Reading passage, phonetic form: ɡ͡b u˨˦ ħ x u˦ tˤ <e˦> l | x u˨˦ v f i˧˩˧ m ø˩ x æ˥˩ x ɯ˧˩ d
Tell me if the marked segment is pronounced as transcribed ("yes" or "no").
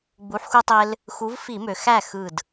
yes